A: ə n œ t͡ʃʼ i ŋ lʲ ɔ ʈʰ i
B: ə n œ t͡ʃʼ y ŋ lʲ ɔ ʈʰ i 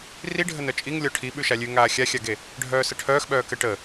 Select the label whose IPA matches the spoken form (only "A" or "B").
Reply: A